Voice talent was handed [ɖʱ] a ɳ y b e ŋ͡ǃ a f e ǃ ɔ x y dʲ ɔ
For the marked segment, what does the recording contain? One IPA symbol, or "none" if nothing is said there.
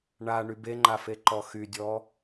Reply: ɳ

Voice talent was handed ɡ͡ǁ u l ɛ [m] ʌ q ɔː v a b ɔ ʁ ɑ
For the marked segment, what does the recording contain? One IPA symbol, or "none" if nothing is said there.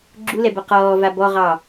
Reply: b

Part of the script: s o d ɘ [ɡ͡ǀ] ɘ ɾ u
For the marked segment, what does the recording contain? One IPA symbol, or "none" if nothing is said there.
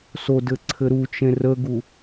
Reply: ǀʰ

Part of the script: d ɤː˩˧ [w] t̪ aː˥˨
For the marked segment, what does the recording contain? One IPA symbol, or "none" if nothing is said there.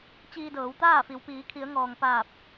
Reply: w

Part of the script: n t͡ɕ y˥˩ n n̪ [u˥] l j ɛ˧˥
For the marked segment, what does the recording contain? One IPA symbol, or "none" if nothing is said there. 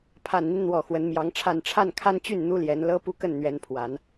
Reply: u˥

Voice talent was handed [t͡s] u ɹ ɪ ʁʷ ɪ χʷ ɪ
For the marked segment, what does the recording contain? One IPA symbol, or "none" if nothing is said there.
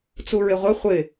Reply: t͡s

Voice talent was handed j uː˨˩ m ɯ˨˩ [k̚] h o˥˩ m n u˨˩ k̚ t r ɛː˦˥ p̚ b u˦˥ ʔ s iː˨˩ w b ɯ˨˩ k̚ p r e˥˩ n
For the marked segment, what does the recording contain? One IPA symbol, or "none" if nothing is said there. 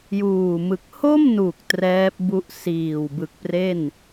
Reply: k̚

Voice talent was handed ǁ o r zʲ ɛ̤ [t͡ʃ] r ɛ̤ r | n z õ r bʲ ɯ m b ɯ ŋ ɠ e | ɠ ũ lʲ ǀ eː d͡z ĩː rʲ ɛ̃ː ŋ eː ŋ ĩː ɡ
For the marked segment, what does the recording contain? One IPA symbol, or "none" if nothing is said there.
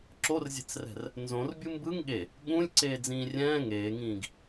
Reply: t͡s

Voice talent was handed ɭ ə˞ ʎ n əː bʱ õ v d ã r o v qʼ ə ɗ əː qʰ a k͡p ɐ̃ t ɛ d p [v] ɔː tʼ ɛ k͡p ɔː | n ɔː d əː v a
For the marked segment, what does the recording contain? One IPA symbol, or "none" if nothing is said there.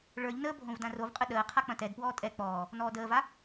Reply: w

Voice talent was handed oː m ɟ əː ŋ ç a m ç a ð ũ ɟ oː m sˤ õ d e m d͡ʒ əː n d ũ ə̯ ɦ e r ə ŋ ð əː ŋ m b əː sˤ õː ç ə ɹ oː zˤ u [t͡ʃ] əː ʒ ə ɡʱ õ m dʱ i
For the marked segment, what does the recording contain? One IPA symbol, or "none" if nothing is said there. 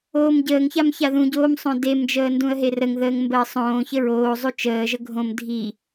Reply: t͡ʃ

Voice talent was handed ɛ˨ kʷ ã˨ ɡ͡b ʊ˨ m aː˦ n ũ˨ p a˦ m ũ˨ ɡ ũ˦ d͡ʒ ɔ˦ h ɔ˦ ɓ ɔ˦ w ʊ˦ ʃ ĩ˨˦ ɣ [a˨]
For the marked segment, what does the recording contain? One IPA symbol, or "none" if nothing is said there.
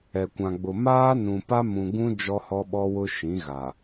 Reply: a˨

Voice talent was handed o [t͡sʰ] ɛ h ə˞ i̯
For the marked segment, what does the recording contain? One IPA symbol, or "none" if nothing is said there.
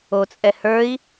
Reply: t͡sʼ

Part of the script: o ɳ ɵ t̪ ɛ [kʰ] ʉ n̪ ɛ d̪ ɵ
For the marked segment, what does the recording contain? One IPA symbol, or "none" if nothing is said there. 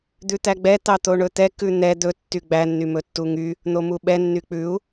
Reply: k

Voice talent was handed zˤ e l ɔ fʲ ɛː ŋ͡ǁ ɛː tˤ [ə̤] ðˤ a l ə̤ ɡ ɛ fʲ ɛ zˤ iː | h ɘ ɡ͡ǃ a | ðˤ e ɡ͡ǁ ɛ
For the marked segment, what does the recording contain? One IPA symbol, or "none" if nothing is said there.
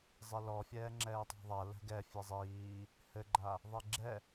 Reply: a̤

